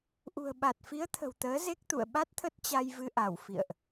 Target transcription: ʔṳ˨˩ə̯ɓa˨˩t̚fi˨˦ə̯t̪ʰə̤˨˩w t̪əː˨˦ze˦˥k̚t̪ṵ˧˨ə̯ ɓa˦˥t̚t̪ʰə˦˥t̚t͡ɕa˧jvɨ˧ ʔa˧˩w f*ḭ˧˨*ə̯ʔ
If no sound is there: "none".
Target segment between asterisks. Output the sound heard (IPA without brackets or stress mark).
ḭ˧˨